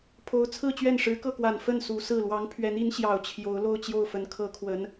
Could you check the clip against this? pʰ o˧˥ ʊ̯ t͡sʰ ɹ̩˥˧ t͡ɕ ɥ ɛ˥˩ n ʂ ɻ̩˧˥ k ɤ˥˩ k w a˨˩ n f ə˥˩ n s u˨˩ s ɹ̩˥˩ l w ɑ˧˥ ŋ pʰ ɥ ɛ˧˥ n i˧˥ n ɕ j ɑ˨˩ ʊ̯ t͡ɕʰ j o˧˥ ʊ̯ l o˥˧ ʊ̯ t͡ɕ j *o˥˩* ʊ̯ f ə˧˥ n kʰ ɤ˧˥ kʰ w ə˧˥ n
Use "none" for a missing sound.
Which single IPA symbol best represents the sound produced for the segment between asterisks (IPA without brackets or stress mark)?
o˥˩